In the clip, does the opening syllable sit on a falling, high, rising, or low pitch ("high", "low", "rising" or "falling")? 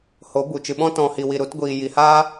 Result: rising